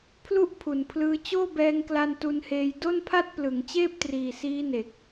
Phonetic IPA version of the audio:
pʰ l u˥˩ ʔ pʰ u˨˩ n pʰ l ɯː˧ t͡ɕ oː˥˩ b ɛː˧ ŋ k l a˧ n t u˧ n h eː˧ j d o˥˩ n pʰ a˥˩ t̚ p l ɯ˩˦ ŋ t͡ɕ eː˥˩ p̚ t r iː˨˩ s iː˦˥ n e˨˩ k̚

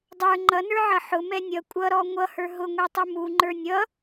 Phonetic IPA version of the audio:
dˤ ə˞ ŋ͡ǃ ʌ n ə˞ ʕ ʌ ħ ʊ m ɛ nʲ ʌ kʷʼ ʌ ɾ ɔ ŋʷ ʌ h ə˞ ɦ ʊ ŋʷ ɛ tˤ u m u ŋ͡ǃ ə˞ nʲ ʌ

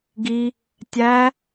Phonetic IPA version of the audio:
ɡ i | tʲ æ

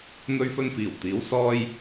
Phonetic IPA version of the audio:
n̪ ɵ˧ ɥ f ɵ˧ n f iː˨˩ w t̪ iː˨˥ w s ɔː˥ j

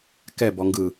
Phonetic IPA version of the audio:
k ɛ b ɔ ŋ ɡ ɯ

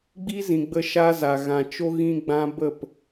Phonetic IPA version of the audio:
ɡ͡b i˦ z ĩ˨ ɡ͡b ə˧ ʃ a˦ z a˨ ɣ ã˨ t͡ʃ o˦ ɣ ĩ˦ ɡ͡b ã˦ b ə˦˨ p

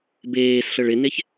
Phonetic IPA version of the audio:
b eː s ɬ ɤ ɭ ɪ n e ç

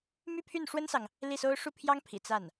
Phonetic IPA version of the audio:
m y˥ pʰ y˥˩ n ʂ w ə˥ n s ɑ˨ ŋ | l i˥˩ s o˥ ʊ̯ ʂ u˥˩ pʰ j ɑ˥ ŋ pʰ ḭ˨˩ t͡s a˥˩ n

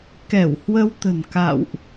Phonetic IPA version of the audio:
k ɛ˧˩ w h w ə˧ w t̪ ə̤˨˩ n k a̰˧˨ w ʔ

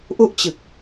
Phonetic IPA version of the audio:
ʔ u˥˩ ʔ t͡ɕ ɯ˨˩ k̚

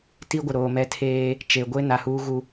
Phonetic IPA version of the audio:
t i˦ ɡʷ ɪ˨ ɾ oː˨ m ɛ˦ tʰ eː˦ | t͡ʃ e˨ ɡʷ e˦ n a˨ h uː˦ ɣ u˦

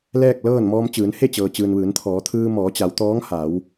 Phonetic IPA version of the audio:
l ɛː˥˨ k̚ l ɤː˥˨ n m ɔː˧ m t͡ɕ ɯː˩˧ n h e˥˨ t͡ɕ ɤː˩ t͡ɕ ɯː˩ n ʋ ɯː˩˧ n t̪ʰ ɔː˩˧ t̪ʰ ɯː˧ m ɔː˩˧ t͡ɕ a˩˧ w t̪ ɔː˧˥ ŋ h a˩˧ w

